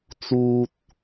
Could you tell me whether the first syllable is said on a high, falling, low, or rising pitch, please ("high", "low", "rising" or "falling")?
high